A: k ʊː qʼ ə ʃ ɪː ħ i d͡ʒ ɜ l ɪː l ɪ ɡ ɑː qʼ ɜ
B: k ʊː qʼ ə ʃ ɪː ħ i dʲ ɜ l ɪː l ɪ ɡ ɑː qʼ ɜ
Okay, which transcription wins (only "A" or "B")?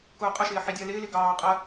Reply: B